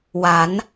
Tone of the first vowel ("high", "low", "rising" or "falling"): rising